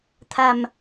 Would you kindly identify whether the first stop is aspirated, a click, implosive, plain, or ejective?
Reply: aspirated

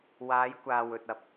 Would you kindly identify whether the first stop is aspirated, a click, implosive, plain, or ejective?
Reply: plain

